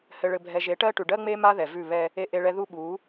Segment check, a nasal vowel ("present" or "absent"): absent